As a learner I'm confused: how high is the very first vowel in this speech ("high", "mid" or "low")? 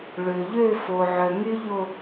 mid